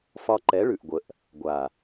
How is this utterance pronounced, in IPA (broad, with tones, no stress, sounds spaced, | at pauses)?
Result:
f ɒ˧ ǃ ɛ˨˦ ɭ ʉ˨ ʔ ɡʷ ə˨ ʔ | ɡʷ a˨